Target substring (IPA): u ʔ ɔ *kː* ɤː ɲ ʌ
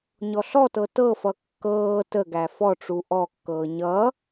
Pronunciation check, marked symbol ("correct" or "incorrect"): correct